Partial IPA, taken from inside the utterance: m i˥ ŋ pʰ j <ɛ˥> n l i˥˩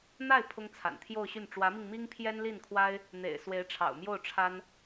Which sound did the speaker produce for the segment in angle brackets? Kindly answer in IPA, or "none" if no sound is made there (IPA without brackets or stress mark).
ɛ˥